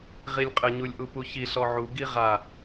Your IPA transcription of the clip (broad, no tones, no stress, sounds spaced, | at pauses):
ʁ i lʲ qʼ ə ɲ u lʲ ʔ u p u ç i ɬ ɔ ʕ u ɡ i ʁ a